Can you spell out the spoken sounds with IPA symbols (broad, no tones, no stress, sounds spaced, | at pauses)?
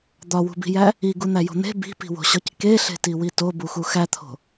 d̪ ɒ w ṳ b i̤ j æ | i ɡ u n̪ æ j o̤ n̪ e̤ b i̤ p i̤ w o̤ ɕ ɒ c k e ɬ e̤ t i w i t o b u x u x æ t̪ʰ o̤